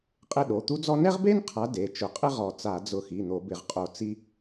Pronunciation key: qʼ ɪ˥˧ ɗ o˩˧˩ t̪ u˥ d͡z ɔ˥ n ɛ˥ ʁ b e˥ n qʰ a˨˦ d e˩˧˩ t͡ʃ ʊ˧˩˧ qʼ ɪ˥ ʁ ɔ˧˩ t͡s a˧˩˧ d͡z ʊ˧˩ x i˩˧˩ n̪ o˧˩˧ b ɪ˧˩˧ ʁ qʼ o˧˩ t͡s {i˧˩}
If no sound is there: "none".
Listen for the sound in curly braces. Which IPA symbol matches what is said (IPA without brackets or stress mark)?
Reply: i˥